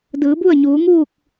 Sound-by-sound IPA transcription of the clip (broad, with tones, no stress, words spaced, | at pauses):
dɯː˩˧bu˥˨ə̯ɲuː˩˧ŋuː˥˨k̚